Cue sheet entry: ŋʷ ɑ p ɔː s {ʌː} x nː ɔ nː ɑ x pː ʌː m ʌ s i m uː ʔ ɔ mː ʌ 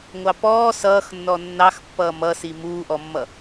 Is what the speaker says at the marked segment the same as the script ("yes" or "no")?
yes